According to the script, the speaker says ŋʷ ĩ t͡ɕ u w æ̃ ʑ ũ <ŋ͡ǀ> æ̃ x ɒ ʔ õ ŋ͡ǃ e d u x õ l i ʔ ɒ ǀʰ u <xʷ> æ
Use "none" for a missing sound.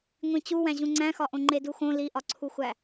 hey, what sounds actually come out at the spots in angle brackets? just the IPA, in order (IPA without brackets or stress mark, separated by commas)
ŋ͡ǀ, xʷ